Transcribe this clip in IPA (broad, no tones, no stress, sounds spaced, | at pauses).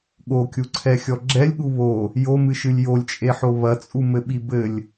ɠ o kʲ u ǀʰ ɛ xʲ ɔ ɡ͡ǁ ɛ lʲ ɠ u β o | j o m ɨ ʃ ɨ lʲ j o lʲ t͡ʃʼ e ħ o β ɐ t͡sʼ u m ɘ ɓ i b ɘ lʲ